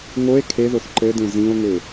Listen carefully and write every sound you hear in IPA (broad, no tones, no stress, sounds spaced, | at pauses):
ŋ o e̯ kʰ e ð o θ ǃ ɘ d ẽ z ĩ o̯ ŋ ø